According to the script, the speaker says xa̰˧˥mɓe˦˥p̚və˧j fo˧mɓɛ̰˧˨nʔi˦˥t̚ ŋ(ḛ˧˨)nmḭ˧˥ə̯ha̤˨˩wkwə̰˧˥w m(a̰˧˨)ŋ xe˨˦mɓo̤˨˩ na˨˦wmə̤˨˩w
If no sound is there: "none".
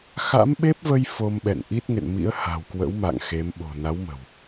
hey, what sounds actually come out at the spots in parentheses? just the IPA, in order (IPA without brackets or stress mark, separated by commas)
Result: ḛ˧˨, a̰˧˨